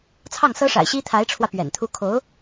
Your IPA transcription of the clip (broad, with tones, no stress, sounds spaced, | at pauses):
t͡sʰ ɑ˥˩ ŋ s ɤ˥ ʂ a̰˨˩ ɪ̯ ɕ i˥ t̪ʰ a˧˥ ɪ̯ ʈ͡ʂʰ w ä˧ p ɥ ɛ̰˨˩ n t̪ʰ u˥ kʰ o˧˥ ʊ̯